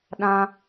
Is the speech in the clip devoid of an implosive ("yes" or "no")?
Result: no